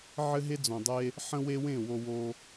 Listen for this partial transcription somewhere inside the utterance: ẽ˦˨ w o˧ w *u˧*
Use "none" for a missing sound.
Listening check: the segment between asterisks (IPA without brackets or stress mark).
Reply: o˧